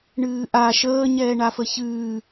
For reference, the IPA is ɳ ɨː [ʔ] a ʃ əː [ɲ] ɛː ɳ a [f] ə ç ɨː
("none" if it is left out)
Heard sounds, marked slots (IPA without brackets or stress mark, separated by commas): ʔ, ɲ, f